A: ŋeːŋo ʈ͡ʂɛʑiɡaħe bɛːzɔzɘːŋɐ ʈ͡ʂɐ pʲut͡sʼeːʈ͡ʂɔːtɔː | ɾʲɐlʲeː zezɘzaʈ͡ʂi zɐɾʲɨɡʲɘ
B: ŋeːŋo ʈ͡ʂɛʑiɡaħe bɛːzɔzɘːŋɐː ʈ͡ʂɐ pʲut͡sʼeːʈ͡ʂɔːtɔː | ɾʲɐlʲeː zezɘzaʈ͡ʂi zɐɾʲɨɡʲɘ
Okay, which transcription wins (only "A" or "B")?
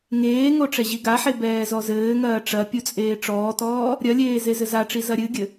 B